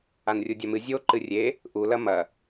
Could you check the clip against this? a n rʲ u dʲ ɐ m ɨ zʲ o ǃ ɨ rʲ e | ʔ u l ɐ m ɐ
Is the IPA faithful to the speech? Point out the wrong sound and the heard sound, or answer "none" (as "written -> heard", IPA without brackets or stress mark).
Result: none